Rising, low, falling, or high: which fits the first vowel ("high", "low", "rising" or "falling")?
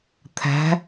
rising